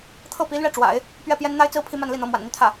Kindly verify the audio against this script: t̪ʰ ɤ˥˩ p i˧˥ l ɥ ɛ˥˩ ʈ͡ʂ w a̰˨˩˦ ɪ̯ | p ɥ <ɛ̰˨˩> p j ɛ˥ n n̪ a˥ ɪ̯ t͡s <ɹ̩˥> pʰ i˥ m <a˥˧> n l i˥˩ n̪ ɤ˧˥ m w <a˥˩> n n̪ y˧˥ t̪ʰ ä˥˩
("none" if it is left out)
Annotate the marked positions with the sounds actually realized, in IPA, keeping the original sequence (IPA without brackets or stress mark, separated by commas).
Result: ɛ˥˩, ɹ̩˥, a˥˧, a̰˨˩